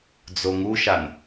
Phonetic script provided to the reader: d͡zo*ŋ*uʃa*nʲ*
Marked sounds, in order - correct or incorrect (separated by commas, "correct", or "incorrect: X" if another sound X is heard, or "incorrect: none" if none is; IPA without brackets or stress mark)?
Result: correct, incorrect: n